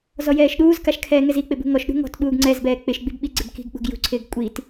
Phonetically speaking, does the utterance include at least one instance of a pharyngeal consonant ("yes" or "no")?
no